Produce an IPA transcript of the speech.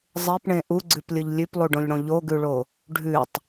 zˤ e p ɳ ẽ ʔ u ɡ͡ǀ ʉ p lʲ ɯ ʎ lʲ ʉ p lˠ u ɖ õ ʎ ɽ õ ʎ o ɡ ʉ ɭ o | ɖʱ ʉ tˤ

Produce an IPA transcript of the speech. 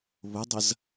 β ʊ dˤ ə z

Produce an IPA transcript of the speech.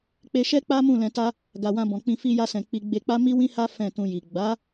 k͡p e˧ ʃ ɛ˦ k͡p a˦ m ũ˦˨ l ɛ̃˧ t a˦ | ɡ a˨ w ã˧ b ɔ̃˨ k͡p ĩ˧ f i˧ j a˧ s ɛ̃˨ k͡p i˧ ɡ͡b e˧ k͡p a˦ m i˦ w ĩ˦ h a˦ f ɛ̃˦˨ t ũ˧ j i˨ ɡ͡b a˨˦

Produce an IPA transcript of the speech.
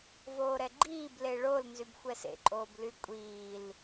v oː ɾ ɛ ɡ͡ǃ iː b l e ɭ o l n z y b xʷ ɛ s ḛ ǃʼ oː b l y kʷʼ iː l

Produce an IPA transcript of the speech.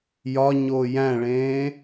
j ɒ ɲ oː j æ̃ ɭ ẽː

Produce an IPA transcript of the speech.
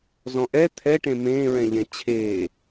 z ɔ̃ ʔ ɛ t̪ʰ ɛ ʈ ẽ m ẽː ɹ ɛ̃ ʎ ɛ̃ t͡ɕʰ eː

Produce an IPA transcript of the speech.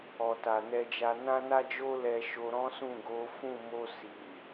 ɔ˨ t a˨ n ɛ˧ d͡ʒ a˧ n ã˦ n a˦ d͡ʒ o˦ l ɛ˧ ʃ o˧ ɾ ɔ̃˦ s ũ˦˨ ɡ o˨˦ f ũ˦˨ m o˧ s i˨

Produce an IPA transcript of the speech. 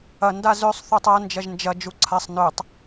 ɐ n d a z ø sˤ θ u tˤ ɐ n d͡ʒ ɐ ʒ n d͡ʒ ɐ d͡ʒ u ǀʰ a sˤ n ø tˤ

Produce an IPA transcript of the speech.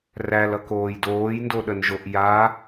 r æ l ʌ k oː j d oː j n d o ɗ ə n ʒ o ʔ j a

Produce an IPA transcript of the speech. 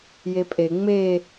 j e pʼ e ŋ͡m e

